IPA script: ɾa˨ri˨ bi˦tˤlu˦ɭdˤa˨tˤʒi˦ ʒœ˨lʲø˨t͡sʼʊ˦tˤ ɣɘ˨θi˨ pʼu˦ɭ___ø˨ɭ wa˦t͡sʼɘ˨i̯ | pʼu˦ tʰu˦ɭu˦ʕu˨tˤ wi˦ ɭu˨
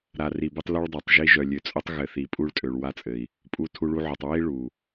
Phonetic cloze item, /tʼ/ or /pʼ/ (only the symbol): tʼ